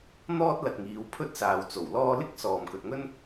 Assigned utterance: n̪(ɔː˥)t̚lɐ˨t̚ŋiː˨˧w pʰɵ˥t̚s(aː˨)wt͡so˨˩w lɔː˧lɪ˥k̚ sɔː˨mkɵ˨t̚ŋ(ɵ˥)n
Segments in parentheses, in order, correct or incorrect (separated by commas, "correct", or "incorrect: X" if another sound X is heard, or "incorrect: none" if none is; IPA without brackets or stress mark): correct, correct, correct